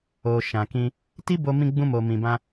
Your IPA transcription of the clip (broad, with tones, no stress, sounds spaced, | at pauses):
o˨ ʃ ã˨ k ĩ˧ | t i˦ b o˧ m ĩ˧ ɡ͡b ũ˧ m o˨ m ĩ˨ b ã˧